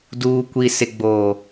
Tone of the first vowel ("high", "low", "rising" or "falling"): low